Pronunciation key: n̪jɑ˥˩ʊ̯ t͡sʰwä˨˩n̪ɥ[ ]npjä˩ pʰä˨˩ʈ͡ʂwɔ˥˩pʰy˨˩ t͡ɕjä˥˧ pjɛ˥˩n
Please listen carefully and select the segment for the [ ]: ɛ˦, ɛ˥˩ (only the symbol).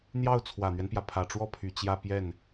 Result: ɛ˦